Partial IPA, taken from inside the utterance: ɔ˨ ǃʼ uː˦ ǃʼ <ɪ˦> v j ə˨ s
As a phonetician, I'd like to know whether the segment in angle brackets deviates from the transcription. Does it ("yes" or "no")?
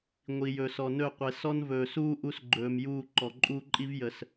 yes